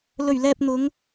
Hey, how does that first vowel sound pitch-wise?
low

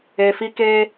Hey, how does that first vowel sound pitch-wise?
low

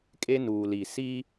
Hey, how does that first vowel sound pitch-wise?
high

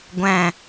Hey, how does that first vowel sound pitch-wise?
falling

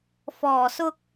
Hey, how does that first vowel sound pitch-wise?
low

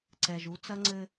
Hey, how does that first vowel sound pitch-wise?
low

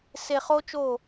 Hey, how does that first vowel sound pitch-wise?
low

